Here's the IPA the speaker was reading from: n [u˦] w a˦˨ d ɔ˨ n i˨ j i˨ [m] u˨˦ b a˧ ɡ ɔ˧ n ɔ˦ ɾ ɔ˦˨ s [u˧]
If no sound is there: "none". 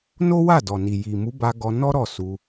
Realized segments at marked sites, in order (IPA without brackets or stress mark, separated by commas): o˦, m, u˧